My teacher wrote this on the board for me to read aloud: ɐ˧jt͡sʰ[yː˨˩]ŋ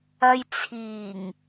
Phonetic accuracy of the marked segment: incorrect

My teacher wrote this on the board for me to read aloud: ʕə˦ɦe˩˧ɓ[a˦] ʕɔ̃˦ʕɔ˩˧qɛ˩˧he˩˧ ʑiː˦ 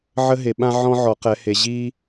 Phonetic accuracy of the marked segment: incorrect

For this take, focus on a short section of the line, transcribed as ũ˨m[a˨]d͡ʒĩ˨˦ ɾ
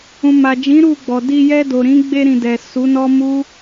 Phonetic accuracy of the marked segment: correct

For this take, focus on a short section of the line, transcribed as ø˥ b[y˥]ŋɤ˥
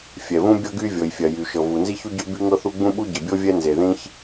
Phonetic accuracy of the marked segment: correct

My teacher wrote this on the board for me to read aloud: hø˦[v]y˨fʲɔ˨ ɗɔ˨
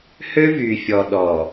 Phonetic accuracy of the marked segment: correct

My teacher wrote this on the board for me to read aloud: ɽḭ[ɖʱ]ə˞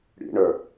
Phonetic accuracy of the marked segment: incorrect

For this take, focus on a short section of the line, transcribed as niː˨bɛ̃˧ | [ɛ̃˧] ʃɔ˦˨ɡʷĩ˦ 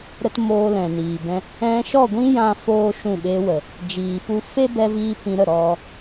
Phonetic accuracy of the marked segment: correct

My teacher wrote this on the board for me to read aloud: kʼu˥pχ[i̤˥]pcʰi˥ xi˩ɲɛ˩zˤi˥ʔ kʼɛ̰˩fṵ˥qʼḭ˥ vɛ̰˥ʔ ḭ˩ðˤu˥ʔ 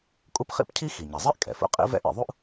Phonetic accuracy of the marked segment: incorrect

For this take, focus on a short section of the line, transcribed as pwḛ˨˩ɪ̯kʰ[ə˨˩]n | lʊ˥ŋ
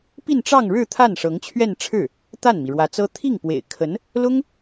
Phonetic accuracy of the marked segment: incorrect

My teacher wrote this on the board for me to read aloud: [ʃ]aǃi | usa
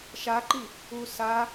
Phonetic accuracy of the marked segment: correct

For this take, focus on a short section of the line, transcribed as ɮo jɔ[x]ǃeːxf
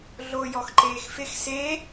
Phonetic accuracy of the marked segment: correct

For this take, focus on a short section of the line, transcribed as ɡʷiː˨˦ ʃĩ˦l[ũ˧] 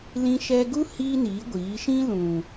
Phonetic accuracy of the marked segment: incorrect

